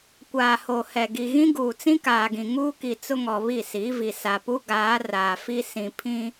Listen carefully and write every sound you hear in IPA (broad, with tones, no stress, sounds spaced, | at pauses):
kʷ aː˨ h o˨ h ɛ˨ ɡ i˨ ɣ ĩ˦ ɡ uː˨ t͡s ĩ˦ k aː˨ ɡ ĩ˨ ŋ uː˦ k i˨ t͡s ʊ˦ ŋ ɔ˨ β i˦˨ s iː˨˦ v i˨ s a˨ p u˦ ɡ aː˨˦ r aː˨ f i˦ s ĩ˨ pʰ ĩ˦